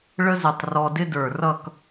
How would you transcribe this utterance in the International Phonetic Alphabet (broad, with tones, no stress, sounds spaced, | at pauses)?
ɭ ə˥ z ɪ˧˩ tˤ r ɔ˧ d ɪ˥ d ə˞˧˩ r ʌ˥˧ k